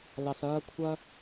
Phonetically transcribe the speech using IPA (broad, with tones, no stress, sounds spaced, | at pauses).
l ɑ˩ s ɐː˧ kʷʰ ɐ˥